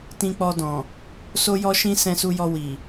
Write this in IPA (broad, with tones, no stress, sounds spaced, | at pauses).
t ĩ˧ k͡p ɔ˧ d ɔ̃˨ | s o˦ j ɔ˦ ʃ ĩ˦ s ɛ̃˧ s u˧ j ɔ˧ w i˨